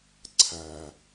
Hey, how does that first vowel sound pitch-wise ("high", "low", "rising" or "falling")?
low